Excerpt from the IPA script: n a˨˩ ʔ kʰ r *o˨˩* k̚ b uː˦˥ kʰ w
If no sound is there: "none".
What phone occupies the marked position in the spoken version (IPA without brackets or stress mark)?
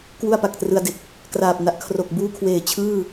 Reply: o˨˩